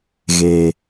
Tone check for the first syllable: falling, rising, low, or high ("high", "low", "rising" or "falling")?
low